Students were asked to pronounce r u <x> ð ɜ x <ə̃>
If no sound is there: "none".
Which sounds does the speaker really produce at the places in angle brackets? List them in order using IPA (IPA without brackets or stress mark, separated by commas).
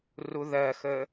none, ə